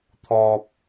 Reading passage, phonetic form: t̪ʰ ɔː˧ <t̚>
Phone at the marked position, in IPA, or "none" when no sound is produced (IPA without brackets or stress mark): p̚